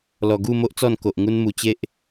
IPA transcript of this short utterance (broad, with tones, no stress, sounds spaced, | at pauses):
l ɔ˨˩ ɡ u˥˧ m o˦ ʔ t͡s ɔ˥˧ n k o˨ ʔ ŋ u˦ n m u˨˩ t͡ɕ e˦ ʔ